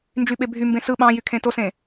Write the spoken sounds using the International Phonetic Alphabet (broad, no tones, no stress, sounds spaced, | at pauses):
n d͡ʒ y ɓ e bʱ y m b ẽ s ɯ ɓ ɑ̃ j y kʰ ẽ t o s ẽ